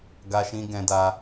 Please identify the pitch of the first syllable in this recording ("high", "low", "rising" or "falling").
high